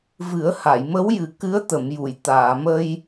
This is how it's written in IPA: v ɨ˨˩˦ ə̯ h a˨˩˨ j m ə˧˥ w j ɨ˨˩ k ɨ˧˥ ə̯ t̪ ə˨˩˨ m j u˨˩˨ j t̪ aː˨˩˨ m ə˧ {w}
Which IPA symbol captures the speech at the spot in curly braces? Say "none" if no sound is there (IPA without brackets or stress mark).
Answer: j